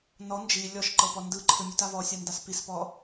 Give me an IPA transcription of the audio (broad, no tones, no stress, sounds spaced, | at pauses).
n ɔ n d͡ʒ i lʲ ɔ ʃ ǃ ɤ p ɔ n d ɯ ǃʰ ɯ mʲ u t a v ɔ sʲ a n d a s p i s p ɔ